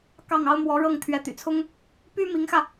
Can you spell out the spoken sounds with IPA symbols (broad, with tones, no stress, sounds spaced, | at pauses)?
k ɑ˥˩ ŋ ɑ˥ ʊ̯ m w ɔ˧˥ ɻ ɤ˥˩ ŋ t̪ʰ ɥ ɛ˧˥ t̪ y̰˨˩ t͡sʰ ʊ˥ ŋ | p y˥ m i˧˥ ŋ x ä˧